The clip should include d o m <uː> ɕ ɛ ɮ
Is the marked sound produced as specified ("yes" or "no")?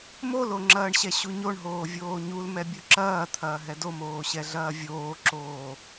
no